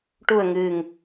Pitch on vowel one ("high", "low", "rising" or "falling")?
low